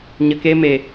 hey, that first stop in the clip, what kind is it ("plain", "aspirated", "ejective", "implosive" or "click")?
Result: plain